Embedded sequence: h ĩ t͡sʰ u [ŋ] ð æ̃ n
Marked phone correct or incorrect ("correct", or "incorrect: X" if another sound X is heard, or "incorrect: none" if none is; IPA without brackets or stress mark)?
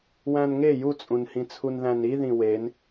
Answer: incorrect: n